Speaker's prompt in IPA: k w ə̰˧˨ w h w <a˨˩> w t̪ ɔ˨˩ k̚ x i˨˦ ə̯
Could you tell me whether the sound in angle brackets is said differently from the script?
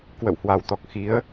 no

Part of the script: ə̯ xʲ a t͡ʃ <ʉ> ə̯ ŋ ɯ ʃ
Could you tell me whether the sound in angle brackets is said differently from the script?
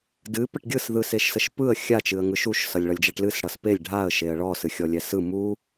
yes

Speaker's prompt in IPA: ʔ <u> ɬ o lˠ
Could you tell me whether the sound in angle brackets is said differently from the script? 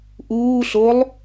yes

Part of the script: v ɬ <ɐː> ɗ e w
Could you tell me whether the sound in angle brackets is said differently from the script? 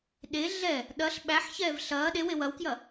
no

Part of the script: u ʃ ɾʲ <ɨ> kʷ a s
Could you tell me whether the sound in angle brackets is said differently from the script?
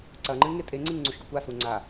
no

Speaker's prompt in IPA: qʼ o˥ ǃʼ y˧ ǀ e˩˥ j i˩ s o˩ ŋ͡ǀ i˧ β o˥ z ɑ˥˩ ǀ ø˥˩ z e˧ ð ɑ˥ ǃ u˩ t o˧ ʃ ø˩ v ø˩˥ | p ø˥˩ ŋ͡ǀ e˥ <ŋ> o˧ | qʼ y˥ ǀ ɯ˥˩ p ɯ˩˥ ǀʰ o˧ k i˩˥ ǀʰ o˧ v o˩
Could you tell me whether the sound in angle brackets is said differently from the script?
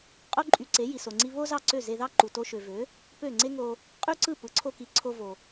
no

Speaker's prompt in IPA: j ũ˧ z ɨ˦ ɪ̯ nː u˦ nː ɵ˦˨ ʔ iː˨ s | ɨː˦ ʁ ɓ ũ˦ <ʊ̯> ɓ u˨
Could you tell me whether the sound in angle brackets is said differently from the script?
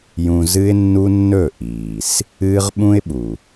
yes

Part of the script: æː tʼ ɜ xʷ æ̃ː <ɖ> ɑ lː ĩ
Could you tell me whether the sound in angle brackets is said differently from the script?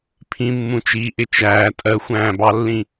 yes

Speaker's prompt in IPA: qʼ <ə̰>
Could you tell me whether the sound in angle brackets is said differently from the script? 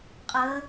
yes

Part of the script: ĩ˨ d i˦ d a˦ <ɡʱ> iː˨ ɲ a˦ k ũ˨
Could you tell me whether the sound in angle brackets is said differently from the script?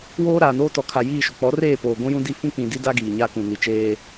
yes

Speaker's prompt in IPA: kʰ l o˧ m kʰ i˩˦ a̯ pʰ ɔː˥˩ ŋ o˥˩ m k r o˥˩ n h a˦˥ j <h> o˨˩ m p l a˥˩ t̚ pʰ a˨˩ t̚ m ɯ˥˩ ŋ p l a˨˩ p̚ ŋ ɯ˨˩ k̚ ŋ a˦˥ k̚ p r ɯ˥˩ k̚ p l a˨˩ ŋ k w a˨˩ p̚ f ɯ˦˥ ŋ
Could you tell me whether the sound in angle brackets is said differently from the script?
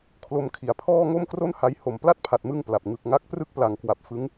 no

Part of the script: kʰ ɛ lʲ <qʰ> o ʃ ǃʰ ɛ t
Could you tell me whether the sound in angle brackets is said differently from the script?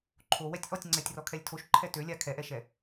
yes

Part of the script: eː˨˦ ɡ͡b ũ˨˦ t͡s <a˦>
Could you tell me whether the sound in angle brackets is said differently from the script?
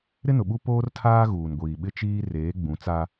no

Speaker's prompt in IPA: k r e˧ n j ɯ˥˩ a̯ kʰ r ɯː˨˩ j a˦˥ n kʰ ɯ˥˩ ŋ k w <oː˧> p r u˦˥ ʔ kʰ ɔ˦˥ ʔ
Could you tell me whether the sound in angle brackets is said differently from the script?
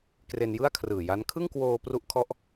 no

